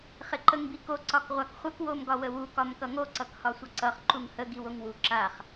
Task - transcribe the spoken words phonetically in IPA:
χ ɪ ǃ ə ŋ b i k o ǀ ɒ k ʁʷ a k χʷ ə k w o m ɡ ɒ w ə w u k ɒ m k ʌ ŋ o ǀ ʌ k h ɒ sʷ ʌ ǀ ʌ χ ǃ u ŋ h ə ɡ i w o ŋ w u ǁ a χ

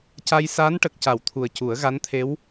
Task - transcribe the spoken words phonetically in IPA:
c a˧ j s aː˧˥ n ʈ ə˨˩ k̚ c a˨˩˨ w t̪ʰ u˨˩ ə̯ c u˨˩˦ ə̯ ɣ a˧˥ n t̪ʰ e˧˥ w

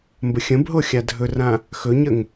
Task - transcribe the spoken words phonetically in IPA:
m b ə xʲ ə̃ b ɦ o xʲ a dʱ ɵ r ã | x ɵ ɲ ə ŋ

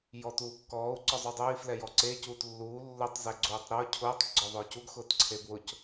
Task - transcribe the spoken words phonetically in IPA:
j ɔ t uː kː ɔː u̯ ǀ ɔ zˤ u dˤ ʊː i̯ f l ɛ j ɔ ǀ e c uː t lː uː lː ʊ tˤ z ɛ ɡ͡ǀ uː tˤ ɾ ʊː cʰ ʊː tˤ ɡ͡ǀ ɔ ðˤ ʊː c u ɡ x ʊː t ǀʰ e b w ʊ c

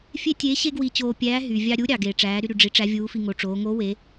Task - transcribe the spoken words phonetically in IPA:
fʲ e˥ tʲ eː˧˥ ɕ e˥ ɡ w i˧ t͡ɕ oː˧ pʲ æː˧˥ ɦ y˩ vʲ ɑ˧ ɾʲ u˧˥ ɾʲ ɑ˩ ɡ eː˩ ʈ͡ʂ æː˩˧ ɾ y˧ ɾ y˩ ɖ͡ʐ i˩˧ ʈ͡ʂ æ˧˥ vʲ uː˧˥ f i˧ ŋ o˩˧ ʈ͡ʂ oː˩˧ ŋ o˧˥ w e˩˧

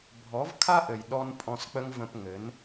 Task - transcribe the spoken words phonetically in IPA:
bʱ ɔ˨˦ v kʰ a˦ ʔ ɘ˨ j ɗ ɔ˧ n pʼ ɔ̃˧ s k͡p ə˦ ŋ v ə̃˧ p ŋ ɘ˨˦ n

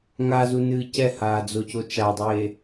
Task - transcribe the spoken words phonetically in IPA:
ŋ a z u n ɨː c ɛ h aː d͡z o c o t͡ʃ a dˤ eː

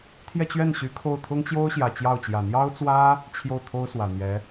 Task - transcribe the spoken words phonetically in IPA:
t̪ʰ j ɛ˥˧ t͡ɕ ɥ ɛ˥˩ n ɕ y˧˥ kʰ o˥˩ ʊ̯ t̪ʰ ʊ˥ ŋ t͡ɕ j o˥ ʊ̯ ɕ j ä˨˩ t͡ɕ j ɑ˥˩ ʊ̯ t͡ɕ j ä˨˩ n̪ j ɑ˥ ʊ̯ t͡s w ä˥ | t͡ɕʰ j o˥˩ ʊ̯ t̪ʰ o˥ ʊ̯ s w ä˨˩ n̪ j ɛ˧˥

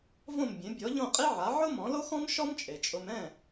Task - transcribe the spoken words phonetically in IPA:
v õ˥˩ m bʲ ẽ˩˥ bʲ ɔ˩˥ ʎ õ˥˩ qʼ i˥ ʕ a˩˥ ʕ ʊ˥ m ɔ̃˩˥ l o˥ x ɔ̃˥ m ʃ ɔ˥ m t͡ʃʼ e˩ t͡ʃʼ ʊ˧ m ɛ̃˥˩

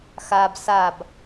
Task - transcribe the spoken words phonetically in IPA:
x a b s a b

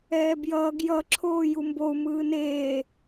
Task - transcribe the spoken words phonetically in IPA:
ɛː b j ʌː ɡ j ʌ ǁʰ oː j u m b o u̯ m ɯː n eː

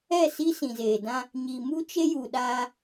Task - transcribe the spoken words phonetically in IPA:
ɛ˦˨ s i˦ s ĩ˨ z eː˨ d ã˦ | ɲ i˨ m u˦ t͡ʃ e˦ j u˨ ɗ a˦

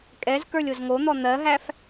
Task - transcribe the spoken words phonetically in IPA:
kʼ ɛ z k ə˞ lʲ o z ŋ o n̪ ɔ n̪ ɜ ɦ æ f

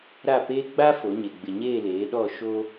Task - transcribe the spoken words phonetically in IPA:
ɾ a˦˨ p eː˦ ɡ͡b a˦ f o˨˦ ɲ e˨ ɡ͡b ɪ˨ ɲ eː˦˨ l eː˨˦ ɗ ɔ˦˨ ʃ o˦

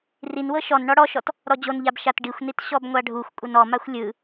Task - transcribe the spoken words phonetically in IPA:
r i n w ɤ ʃ ɔ n ɳ ɔ ɽ ɔ ʃ ɔ t | ɾ ɔ d͡ʑ o n ʎ a b ʃ a t ɖ i xʷ n i t ɕ ɔ b ŋʷ a ɖʱ u xʷ kʷʼ ɯ n ɔ m a xʷ lʲ ɯ

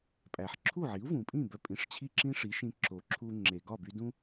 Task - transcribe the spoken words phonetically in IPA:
pʼ æ˩ ħ ǁʰ u˥˩ ʕ i˩˥ u̯ v ũ˩ pʼ ĩ˥˩ b œ˧ pʼ ĩ˩˥ ʂ t͡ɕʰ i˥˩ ǁ ĩ˥ ʂ i˩˥ ʃ ĩ˧ ǁ o˩ ǁʰ u˧ ŋ͡ǁ e˩ ɡ ɒ˥˩ b y˧ d ũ˥

